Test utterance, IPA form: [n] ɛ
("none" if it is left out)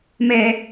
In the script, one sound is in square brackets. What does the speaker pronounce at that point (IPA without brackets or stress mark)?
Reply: m